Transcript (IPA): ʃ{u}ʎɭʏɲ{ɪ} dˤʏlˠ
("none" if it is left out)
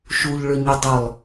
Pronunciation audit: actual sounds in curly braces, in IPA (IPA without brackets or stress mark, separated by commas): u, ɪ